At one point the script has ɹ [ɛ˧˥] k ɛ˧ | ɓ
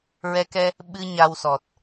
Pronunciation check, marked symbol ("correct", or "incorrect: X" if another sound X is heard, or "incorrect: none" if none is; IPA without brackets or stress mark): incorrect: ɛ˧